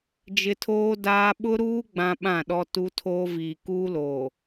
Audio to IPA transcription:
d͡ʒ ɪ˦ tʰ oː˦ d aː˦ ɓ ʊ˦ ɾ uː˦ ɡ͡b ã˦ ɓ ã˦˨ ɗ ɔ˦ t u˦ tʰ oː˦ v iː˨ k uː˦ l oː˨

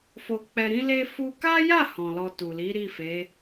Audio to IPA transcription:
f o˧ k͡p ɛ˧ ɾ ĩ˦ l e˧ f u˧ k a˦ j a˦˨ h ɔ̃˨ l ɔ˧ t u˨ l i˨˦ ɾ i˦˨ f e˨˦

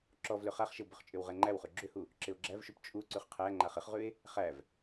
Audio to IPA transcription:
ǁ ɔ v l ʏ χ a χ ʃ ɪ w b ʏ χ t͡ʃʼ ʏ w ʁ ɛ ŋ͡ǃ æ w χ ʉ ɡ͡ǁ ʏ h u | ǁ ɪ o̯ ɡ͡ǁ æ v ʃ u p t͡ʃʼ u ǀ ʉ χ qʰ æ ŋ͡ǃ a χ ɪ χ ʁ ʉ e̯ | χ æ v

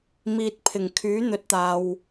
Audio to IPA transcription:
m iː˨ t̚ pʰ ɪ˨˩ ŋ kʰ yː˨˥ n̪ ɵ˨˥ t̚ t̪ aː˨ w

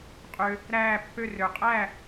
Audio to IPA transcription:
qʼ ø˧ | ɾ æː˥˩ pː ø˥˩ r ø˩ qʼ æ˥˩

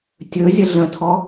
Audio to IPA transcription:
tʲ ɵ zʲ ə ɮ ə̃ tʰ ɔ

